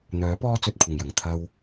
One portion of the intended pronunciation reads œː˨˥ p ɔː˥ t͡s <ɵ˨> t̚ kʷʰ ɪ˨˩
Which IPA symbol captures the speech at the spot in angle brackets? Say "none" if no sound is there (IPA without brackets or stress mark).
ɵ˧